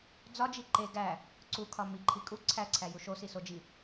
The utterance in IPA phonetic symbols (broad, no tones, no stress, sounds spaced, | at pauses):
d͡z ɒ d͡ʒ i ǃ e ɡ æ | ǀ u kʰ ɒ m i ǃʰ i kʼ u ǀʰ æ ǀʰ æ j u ʃ o s i s o d͡ʒ i